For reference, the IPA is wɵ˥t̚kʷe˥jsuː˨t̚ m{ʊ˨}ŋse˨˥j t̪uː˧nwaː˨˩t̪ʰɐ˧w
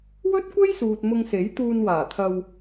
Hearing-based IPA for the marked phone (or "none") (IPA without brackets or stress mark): ʊ˧